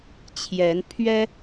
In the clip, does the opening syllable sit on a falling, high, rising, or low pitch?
rising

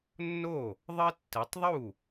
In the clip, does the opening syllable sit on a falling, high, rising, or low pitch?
falling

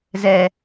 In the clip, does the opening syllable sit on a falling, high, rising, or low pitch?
low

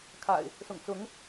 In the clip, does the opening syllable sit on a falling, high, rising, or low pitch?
low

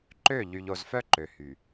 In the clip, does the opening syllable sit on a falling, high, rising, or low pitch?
falling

